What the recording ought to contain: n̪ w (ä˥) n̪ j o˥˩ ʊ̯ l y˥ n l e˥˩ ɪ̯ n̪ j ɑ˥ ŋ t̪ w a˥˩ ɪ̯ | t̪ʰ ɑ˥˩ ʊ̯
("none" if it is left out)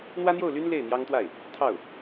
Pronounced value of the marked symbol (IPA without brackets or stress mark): ä˥